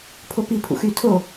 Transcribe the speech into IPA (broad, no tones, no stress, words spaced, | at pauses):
pʰopi pʰṵxy tʰo